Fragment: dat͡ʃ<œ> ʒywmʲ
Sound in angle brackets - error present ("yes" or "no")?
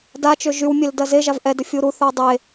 yes